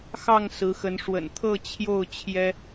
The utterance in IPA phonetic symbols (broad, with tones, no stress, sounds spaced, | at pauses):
x ɑ˥˨ ŋ s ɹ̩˨˦ x ə˨˦ n ʂ w ə̰˨˩ n t̪ʰ ɤ˥˨ t͡ɕʰ j o˥˨ ʊ̯ t͡ɕʰ j ɛ˦